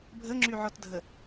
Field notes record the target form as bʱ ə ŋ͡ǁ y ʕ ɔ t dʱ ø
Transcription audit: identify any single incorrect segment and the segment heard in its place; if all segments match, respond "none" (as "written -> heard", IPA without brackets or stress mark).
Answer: ø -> ə